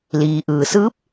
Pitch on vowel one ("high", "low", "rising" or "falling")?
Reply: low